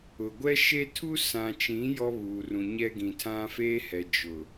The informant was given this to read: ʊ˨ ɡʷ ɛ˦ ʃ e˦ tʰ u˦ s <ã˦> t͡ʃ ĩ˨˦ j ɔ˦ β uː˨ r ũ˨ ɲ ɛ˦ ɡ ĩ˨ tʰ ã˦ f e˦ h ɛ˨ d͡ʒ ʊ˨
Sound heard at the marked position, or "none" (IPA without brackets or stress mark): ã˨